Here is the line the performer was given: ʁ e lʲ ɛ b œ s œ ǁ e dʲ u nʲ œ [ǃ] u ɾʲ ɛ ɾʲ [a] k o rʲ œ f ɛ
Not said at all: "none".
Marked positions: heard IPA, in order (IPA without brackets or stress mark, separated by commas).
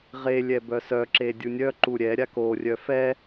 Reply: ǃ, a